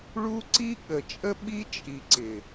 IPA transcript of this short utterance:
ɭu˦ ǀi˦ɠə˨t͡ʃʼə˦ ɓi˦t͡ʃʼi˨ ǀɪ˨

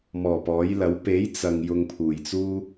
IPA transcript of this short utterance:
mɔː˨˩ pɔː˨˥jlɐ˨˥w pe˨˥j t͡sɐ˨ŋ jʊ˧ŋpʰuː˨˩jt͡suː˥

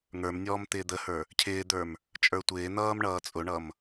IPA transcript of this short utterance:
ŋə˞mnʲɔːm t̪ɪːd̪əhə˞ | cʰɪːd̪ə˞m | t͡ʃʼə˞tʷɪːn̪ʌːm ɳʌːt͡sʼʊɳʌm

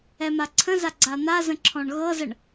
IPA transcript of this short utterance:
ɛmaǀʰə̃za ɡ͡ǀan̪a zə̃ǁʰɔ̃ɳɣɤzəɳ

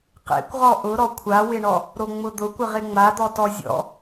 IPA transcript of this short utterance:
qḛkʷʁɔ ʔʊɾɔ kʷʰawɪɳɔ | ɾoŋ͡mʊd̪ʊkʷɪʁ ɪŋ͡mad̪ɔ tɔzʲɔ̰

